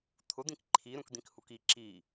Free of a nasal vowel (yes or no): no